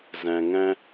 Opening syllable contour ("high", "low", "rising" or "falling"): low